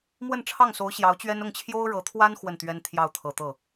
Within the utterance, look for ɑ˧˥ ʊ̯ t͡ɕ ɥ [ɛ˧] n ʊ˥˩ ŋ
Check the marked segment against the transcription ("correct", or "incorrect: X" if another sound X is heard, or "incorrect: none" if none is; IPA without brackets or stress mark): incorrect: ɛ˥